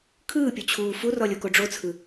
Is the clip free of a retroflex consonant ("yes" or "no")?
no